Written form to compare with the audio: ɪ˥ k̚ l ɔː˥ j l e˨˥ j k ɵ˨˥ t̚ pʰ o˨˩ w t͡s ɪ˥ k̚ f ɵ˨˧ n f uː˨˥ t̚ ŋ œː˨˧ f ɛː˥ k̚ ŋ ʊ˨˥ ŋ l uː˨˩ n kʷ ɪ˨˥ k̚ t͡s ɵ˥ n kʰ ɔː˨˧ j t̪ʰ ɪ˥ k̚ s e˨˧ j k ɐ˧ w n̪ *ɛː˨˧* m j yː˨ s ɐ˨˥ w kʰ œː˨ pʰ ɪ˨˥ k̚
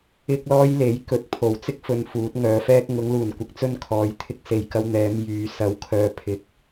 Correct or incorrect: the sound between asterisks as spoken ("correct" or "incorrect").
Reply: correct